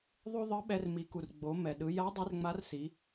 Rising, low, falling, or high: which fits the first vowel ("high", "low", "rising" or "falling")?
high